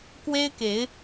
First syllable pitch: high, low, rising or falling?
high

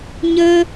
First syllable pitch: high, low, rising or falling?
high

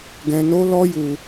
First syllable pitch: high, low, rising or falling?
high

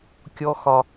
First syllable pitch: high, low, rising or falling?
high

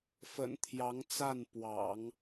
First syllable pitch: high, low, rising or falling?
low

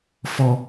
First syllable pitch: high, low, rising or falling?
high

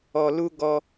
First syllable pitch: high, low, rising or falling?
low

